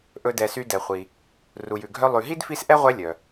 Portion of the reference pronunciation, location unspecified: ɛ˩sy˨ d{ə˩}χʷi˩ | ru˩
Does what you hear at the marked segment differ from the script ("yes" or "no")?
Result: yes